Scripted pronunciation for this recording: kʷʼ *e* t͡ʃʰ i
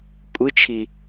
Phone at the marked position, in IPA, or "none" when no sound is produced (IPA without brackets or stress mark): ɨ